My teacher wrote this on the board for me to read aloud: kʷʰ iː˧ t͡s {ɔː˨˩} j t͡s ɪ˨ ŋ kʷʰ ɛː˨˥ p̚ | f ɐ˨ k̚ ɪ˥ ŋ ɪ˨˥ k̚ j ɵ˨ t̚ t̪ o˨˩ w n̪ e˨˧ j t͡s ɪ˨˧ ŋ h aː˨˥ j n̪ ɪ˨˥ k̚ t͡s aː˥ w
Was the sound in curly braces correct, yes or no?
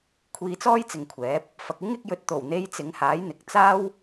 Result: no